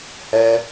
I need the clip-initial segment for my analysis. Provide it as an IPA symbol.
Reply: h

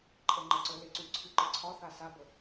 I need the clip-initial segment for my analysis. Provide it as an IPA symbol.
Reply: ǃʼ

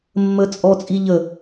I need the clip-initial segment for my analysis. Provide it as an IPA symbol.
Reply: mː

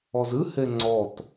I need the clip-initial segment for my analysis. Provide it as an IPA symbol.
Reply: ɔ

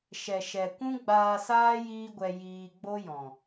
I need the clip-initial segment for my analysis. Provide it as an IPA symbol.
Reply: ʃ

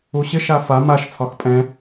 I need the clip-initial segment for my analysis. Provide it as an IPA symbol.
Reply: u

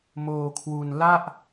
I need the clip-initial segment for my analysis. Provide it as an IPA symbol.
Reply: m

